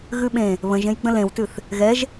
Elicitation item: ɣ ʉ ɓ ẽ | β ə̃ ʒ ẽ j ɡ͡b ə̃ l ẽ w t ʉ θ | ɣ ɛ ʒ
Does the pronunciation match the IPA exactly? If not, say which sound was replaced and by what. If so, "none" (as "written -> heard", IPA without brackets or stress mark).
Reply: none